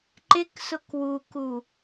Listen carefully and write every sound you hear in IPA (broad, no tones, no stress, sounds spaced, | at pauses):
ǃ ɪ k s ʊ k w u k u